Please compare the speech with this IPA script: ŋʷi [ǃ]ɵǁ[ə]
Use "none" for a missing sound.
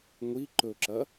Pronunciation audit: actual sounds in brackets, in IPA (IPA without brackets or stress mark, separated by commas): ǃ, ɐ